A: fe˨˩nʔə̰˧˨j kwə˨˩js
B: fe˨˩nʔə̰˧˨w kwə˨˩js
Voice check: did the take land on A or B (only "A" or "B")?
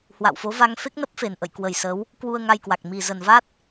A